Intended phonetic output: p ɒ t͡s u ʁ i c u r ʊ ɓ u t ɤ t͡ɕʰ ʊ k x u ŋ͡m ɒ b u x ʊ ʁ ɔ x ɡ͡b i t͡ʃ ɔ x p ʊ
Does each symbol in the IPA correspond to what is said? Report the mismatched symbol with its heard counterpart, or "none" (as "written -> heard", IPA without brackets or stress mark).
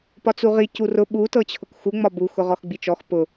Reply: none